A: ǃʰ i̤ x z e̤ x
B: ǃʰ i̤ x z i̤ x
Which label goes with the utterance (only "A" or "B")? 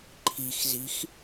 B